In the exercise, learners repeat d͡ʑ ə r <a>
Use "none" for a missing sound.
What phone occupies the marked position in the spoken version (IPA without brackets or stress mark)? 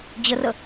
ə